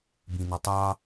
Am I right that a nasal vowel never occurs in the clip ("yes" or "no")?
no